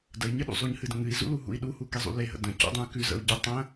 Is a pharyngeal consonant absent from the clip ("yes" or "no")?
yes